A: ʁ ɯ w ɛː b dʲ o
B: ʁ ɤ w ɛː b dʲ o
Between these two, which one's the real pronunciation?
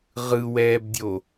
A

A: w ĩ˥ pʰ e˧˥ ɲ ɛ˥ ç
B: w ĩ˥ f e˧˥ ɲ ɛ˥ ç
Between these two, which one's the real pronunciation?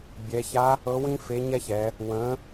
B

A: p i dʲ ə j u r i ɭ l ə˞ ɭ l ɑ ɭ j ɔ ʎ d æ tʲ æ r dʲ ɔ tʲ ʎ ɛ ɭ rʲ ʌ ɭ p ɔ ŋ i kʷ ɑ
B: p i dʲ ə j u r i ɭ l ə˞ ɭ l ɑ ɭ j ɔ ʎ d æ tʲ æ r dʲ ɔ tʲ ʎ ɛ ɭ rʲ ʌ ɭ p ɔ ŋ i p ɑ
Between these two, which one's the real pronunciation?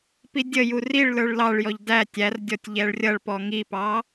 B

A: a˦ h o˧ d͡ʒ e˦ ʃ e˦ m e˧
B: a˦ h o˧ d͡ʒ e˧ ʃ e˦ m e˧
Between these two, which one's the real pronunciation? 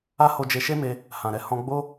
B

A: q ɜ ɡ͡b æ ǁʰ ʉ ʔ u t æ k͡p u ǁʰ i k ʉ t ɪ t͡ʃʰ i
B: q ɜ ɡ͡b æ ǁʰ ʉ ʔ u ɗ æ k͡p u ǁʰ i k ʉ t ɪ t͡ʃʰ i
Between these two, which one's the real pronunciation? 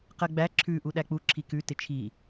B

